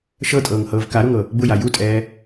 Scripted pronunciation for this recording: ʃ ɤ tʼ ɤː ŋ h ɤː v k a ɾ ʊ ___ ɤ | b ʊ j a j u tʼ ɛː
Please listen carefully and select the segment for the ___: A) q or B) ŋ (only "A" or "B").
B